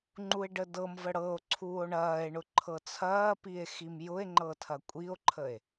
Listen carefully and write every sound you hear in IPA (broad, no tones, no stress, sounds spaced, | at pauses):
ŋ͡ǃ u e̯ ɖ ə d ɤ m v ə ɽ ɤ o̯ ǀʰ uː o̯ ɳ ɐː e̯ ɳ ʊ ǃʰ ɤ t͡sʰ ɐː p i e̯ x i m j ʊ e̯ ŋ͡ǃ ɤ tʰ ɐ kʷʼ i o̯ ǃʰ ə e̯